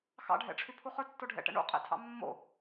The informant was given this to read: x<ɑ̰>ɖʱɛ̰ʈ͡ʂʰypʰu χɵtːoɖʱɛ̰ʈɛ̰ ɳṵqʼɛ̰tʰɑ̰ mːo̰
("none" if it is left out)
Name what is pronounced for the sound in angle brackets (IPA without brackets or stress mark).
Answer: ɑ̰